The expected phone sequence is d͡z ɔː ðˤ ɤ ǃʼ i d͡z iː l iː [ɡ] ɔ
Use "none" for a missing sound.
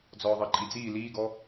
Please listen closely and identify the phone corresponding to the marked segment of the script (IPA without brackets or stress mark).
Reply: ɡ